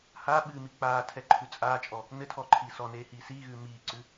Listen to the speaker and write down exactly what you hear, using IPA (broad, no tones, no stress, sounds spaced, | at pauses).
h a ɓ ɨː m i k͡p aː tʰ ɛ ǃʰ ʉ t͡sʼ aː t͡ʃʼ ɔ | n ɘ tʰ ɔː ǃʰ iː s ɔ n eː h iː s iː ɣ ʉː m iː ǀ ʉ